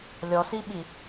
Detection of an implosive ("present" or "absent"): present